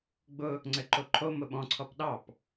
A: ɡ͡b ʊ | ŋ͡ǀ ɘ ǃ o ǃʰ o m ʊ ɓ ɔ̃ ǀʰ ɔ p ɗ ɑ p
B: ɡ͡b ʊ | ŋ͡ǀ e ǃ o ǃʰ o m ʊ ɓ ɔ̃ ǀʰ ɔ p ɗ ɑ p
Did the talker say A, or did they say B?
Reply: A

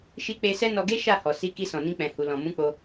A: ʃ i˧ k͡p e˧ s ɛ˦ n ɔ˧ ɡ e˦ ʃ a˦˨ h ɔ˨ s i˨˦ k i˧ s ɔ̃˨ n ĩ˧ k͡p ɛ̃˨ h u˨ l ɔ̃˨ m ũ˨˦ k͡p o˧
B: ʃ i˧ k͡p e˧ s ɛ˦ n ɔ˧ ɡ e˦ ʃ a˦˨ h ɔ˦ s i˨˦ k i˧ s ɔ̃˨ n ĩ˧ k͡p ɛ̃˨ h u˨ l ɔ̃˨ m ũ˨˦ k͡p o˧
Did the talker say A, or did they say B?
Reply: A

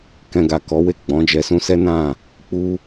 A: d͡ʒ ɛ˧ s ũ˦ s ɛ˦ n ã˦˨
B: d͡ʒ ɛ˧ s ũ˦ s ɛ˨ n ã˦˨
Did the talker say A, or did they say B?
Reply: A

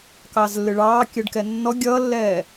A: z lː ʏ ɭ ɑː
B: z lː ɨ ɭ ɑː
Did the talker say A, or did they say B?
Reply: B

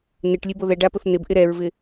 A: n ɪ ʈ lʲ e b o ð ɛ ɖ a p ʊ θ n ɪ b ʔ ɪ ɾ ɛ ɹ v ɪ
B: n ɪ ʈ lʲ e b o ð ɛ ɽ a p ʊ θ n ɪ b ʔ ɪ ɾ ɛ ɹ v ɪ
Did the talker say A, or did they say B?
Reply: A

